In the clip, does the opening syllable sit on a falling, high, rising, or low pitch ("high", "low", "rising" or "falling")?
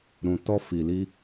low